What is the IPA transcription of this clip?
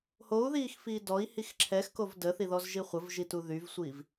hou̯ðiːxfiː dɔi̯hix ǁʰɛxkov dəθiðɔzʒi χʷəvʒitu ðyvsʷiv

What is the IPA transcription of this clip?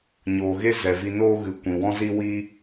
ɲoː˨ɣe˦ zɛ˨vi˧noː˦ ɣɨ˨ kʷĩ˨wɔ̃˦zi˦ wi˦

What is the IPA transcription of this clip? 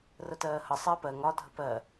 rətɜːhə sˤɪːpɜŋ ɒ dʱəpɜ

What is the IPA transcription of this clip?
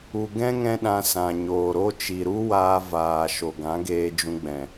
u˨ɡɛ̃˦ ŋɛ̃˦ɗã˧sã˨ɲoː˨ ɾo˦t͡ʃi˨ ɾu˦waː˧ vaː˨ ʃo˨ɡã˨˦ɡeː˧ d͡ʒũ˧ɡ͡bɛ̃˨

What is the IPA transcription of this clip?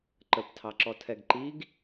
ǃəptʰɑǁɔ tʰɛɡǃiɡ

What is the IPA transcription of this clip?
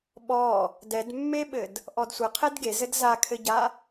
ɓɔ | dɛdmːeɓɘd | ʔɔdsʷɘ qʰɛdɡezɘd zakʰɘɟa

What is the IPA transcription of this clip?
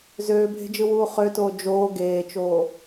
zøːbʱe̤d͡ʒɯwuː χøtoː d͡ʒoː ɡeːt͡ʃoː

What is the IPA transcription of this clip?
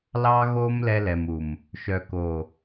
lɑ˦ɣo˦m lɛ˦lɛ˨mu˨m | ʃœ˨ko˨

